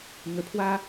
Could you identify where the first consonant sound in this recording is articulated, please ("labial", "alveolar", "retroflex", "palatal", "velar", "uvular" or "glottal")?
velar